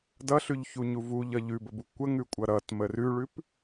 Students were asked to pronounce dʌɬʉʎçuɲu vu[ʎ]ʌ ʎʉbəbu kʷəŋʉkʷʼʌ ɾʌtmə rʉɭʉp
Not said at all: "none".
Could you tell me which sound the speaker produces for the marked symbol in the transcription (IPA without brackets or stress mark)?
ʎ